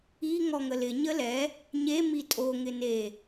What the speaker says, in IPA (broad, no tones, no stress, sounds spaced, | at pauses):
i ŋ ɔ ŋ ə l ɪ ɲ ə l ɛ | ɲ e m i tʼ o ŋ ɪ n e